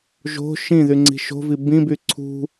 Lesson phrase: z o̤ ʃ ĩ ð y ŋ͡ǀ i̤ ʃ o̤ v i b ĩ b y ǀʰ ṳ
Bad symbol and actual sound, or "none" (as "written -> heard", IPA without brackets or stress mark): z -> ʒ